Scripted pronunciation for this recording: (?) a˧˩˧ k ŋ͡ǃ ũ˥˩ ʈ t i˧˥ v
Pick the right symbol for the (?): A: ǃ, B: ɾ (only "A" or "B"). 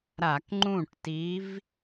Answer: B